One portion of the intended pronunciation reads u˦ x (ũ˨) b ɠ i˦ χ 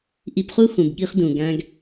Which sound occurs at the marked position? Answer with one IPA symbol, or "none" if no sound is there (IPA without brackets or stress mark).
ũ˨